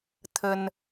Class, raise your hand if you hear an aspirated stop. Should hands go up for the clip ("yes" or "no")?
yes